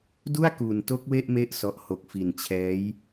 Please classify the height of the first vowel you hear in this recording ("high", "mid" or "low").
high